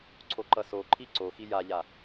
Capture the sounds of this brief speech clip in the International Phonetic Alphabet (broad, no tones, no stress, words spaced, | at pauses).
ǀʰoǃʌsoǃʰi ǀoxi jaʎa